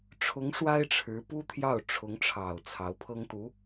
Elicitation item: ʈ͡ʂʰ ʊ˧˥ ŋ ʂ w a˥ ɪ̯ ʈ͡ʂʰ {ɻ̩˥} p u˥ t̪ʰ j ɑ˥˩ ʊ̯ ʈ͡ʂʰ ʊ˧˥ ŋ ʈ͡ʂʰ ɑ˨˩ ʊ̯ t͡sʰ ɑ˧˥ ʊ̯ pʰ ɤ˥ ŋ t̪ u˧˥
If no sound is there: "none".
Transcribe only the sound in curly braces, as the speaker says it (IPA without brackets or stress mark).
ɻ̩˧˥